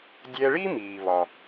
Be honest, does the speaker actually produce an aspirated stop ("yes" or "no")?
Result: no